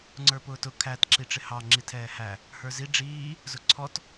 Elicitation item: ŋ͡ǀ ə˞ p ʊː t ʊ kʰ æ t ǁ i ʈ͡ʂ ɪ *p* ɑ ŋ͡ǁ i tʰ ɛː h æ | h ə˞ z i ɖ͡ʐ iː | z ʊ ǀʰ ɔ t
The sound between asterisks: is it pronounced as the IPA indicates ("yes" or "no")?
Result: no